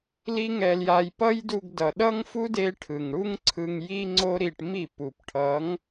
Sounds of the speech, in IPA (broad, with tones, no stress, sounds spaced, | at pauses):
l i˦ ŋ ɛ˧ l j a˧ j p ʌ˦ j d u˧ ɡ d ʌ˨ ɗ ʌ˦ ŋ f u˦ d e˧ ʈʰ ɯ˨ ŋ ɽ u˦ ŋ ǀʰ ɯ˧ ŋ j i˦ ŋ͡ǀ o˦ ɾ i˧ ʈ m i˦˨ p u˨ p ʈʰ ʌ˨˦ ŋ